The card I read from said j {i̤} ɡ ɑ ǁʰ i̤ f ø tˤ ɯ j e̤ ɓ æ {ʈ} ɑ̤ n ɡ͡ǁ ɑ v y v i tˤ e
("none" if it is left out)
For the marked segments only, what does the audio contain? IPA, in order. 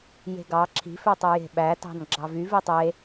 e̤, t

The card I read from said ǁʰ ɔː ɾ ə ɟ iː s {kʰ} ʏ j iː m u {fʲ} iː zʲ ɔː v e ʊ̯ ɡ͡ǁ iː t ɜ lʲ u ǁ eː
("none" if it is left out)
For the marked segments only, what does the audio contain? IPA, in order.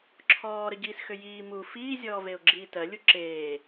x, f

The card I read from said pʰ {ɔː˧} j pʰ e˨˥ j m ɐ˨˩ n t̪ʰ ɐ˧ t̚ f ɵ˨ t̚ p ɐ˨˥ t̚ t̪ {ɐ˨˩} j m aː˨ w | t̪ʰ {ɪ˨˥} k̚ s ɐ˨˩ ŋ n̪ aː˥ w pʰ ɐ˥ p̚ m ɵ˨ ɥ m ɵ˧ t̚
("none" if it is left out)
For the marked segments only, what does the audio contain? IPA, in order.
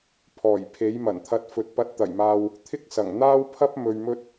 ɔː˨˩, ɐ˨˩, ɪ˥

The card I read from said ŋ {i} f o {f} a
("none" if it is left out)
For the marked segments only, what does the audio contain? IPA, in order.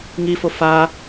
i, f

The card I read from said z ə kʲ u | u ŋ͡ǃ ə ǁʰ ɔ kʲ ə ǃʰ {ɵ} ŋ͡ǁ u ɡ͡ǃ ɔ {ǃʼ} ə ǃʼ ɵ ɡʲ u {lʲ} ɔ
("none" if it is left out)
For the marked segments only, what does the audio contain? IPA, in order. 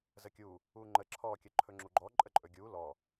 ɵ, ǃʼ, l

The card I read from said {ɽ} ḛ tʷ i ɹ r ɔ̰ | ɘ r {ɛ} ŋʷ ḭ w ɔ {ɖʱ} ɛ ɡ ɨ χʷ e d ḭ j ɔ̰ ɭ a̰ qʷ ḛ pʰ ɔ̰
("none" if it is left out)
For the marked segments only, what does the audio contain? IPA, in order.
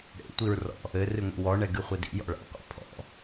ɽ, ɨ, ɳ

